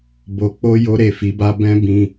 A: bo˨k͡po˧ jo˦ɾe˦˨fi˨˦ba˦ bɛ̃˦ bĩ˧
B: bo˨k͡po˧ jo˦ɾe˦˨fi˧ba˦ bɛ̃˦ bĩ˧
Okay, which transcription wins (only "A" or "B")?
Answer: A